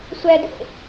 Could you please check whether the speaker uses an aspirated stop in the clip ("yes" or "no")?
no